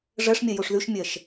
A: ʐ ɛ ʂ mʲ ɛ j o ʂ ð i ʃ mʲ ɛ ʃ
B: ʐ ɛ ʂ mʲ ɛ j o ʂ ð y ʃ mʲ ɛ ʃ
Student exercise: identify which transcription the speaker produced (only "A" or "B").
B